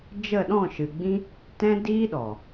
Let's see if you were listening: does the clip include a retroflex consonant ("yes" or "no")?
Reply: no